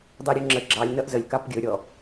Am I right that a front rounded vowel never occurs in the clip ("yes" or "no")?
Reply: yes